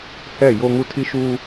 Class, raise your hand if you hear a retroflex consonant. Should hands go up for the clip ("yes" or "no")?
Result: no